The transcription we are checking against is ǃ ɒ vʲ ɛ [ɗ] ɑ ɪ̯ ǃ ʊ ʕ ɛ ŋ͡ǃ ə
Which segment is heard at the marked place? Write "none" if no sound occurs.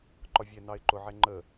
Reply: n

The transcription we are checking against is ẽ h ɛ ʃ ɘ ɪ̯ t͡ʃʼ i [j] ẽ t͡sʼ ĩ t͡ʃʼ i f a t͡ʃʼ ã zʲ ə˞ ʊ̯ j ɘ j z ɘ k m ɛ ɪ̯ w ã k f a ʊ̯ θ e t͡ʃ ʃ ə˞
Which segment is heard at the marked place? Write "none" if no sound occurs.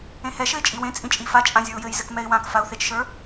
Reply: w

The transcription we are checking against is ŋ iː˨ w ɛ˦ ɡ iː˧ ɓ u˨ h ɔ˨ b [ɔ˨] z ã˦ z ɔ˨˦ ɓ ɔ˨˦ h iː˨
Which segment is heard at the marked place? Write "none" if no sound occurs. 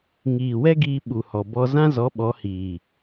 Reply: ɔ˦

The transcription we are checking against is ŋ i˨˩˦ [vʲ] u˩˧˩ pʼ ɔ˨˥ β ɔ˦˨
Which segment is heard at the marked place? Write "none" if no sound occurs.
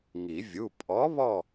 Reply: vʲ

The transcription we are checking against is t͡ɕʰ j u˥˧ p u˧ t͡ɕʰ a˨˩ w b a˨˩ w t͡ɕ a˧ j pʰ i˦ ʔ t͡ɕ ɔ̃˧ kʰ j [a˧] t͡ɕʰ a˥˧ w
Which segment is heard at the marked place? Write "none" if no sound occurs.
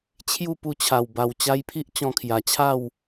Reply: a˨˩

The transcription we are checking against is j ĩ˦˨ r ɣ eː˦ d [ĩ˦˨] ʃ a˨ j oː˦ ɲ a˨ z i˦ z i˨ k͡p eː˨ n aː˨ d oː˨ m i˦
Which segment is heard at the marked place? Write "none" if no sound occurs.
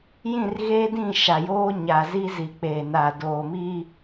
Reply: ĩ˦˨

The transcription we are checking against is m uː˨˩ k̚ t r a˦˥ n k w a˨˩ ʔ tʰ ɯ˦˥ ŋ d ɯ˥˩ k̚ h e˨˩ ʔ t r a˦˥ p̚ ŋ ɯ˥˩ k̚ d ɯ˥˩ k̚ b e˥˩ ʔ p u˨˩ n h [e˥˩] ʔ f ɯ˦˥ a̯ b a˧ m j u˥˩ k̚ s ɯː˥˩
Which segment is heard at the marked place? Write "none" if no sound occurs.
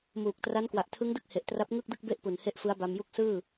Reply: e˥˩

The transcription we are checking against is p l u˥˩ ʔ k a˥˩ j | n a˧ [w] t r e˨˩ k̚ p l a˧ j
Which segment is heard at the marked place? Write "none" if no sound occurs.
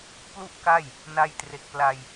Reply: j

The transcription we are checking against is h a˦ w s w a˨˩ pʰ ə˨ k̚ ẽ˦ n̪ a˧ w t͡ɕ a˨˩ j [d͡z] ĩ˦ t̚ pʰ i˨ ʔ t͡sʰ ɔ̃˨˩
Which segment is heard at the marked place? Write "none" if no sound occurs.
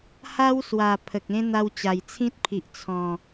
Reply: t͡sʰ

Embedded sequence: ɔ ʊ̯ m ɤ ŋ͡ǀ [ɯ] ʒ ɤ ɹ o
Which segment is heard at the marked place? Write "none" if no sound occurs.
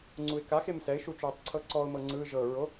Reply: ɯ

